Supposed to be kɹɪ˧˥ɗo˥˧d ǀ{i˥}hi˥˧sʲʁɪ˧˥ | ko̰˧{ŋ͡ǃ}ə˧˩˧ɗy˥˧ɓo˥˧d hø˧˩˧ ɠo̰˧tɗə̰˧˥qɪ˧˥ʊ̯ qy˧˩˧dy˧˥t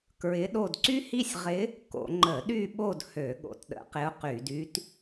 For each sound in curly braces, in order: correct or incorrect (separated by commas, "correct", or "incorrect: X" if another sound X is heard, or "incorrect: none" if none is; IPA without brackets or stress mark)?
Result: incorrect: y˥, correct